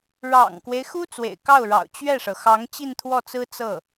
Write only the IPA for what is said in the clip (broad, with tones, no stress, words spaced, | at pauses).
ɻɑ̰˨˩ŋkwe˦ɪ̯xu˥ t͡swḛ˨˩ɪ̯kɑ˥˩ʊ̯ɻɑ̰˨˩ʊ̯ t͡ɕɥɛ˥˩ʂɤ˩ xɑ˧˥ŋt͡ɕi˥˧nt̪ʰwɔ˥˩t͡sɹ̩˥ t͡sɤ˥˩